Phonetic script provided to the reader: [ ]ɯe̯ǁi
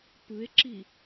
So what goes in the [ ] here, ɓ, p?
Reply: p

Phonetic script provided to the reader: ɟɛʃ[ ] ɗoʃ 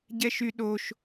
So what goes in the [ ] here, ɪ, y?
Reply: y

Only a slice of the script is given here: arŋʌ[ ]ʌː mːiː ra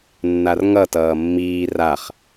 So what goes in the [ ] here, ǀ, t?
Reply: t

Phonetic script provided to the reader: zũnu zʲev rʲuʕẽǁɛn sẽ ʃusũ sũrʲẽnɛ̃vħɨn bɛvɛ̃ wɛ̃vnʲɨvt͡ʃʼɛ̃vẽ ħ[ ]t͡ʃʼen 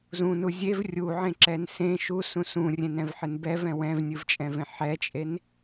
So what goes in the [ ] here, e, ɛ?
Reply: ɛ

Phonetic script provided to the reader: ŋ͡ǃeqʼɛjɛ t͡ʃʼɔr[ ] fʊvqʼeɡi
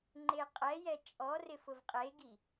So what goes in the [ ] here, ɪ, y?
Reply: ɪ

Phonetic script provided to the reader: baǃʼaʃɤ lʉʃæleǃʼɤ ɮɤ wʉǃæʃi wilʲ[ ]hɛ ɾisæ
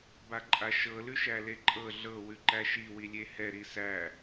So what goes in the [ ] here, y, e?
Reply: e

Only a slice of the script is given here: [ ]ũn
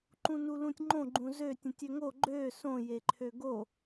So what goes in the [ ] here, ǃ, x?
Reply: ǃ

